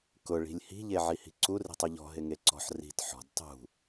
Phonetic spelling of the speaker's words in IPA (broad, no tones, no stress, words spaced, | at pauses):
kʊ ɭi̤lʲhi̤ ʎeʕihi̤ǀur i̤tˤuʎɔ̤ ɦɪŋeǀɔ̤ħ ri̤t ħɔ̤d tˤṳ